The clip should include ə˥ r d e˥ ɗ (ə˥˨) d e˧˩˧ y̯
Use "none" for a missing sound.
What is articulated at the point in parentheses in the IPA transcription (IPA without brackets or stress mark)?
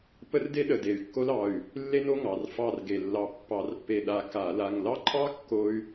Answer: ə˧˩